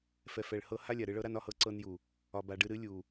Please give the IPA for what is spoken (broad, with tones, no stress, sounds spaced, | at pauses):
f ɛ˨ f ɛ˨ ɭ h ɤ˧ h a˦ lʲ a˨ ɾ ɨ˧ ɭ ɤ˦ ɾ a˦ n ɒ˧ h ɤ˦ ǀ ɤ˧ n j u˨ | ɒ˨ b a˨ ɖ ɨ˧ ɾ ɨ˨˦ lʲ u˨